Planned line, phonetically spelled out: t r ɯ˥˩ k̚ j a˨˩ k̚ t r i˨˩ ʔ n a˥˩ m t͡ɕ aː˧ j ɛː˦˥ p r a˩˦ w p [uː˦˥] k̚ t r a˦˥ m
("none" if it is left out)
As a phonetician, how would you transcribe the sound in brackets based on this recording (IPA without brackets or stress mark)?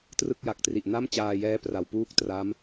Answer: uː˦˥